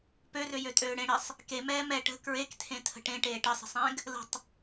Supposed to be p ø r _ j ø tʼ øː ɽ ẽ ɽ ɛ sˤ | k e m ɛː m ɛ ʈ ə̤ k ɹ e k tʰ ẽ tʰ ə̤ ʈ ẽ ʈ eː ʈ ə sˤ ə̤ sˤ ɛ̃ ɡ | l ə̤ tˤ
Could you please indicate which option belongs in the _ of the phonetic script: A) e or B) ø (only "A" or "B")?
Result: B